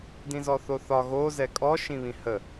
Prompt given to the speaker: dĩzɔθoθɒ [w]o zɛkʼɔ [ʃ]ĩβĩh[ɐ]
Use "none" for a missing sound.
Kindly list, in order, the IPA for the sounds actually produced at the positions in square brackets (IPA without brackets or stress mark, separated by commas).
ɣ, ʃ, ə